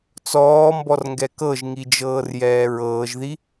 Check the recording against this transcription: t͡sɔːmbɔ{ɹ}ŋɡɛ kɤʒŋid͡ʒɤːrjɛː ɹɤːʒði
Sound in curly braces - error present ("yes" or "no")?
yes